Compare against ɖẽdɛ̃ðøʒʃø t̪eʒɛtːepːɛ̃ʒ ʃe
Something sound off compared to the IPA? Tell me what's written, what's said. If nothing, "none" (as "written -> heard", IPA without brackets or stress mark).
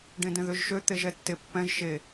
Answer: none